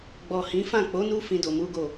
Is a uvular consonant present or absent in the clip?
absent